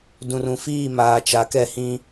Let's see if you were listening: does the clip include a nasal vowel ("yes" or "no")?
yes